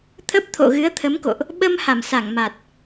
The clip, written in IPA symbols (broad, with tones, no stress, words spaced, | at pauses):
t̪ʰə˦˥p̚t̪ʰo̰˧˨ɣɨ˨˦ə̯ t̪ʰə˨˦mko̰˧˨ʔ | ɓə˧m ha˧˩msa˧˩ŋma˨˩t̚